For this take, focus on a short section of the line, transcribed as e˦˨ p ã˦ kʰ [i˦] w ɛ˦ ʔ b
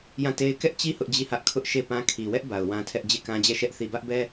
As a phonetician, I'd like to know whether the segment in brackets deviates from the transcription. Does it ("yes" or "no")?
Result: yes